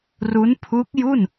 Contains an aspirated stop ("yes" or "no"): yes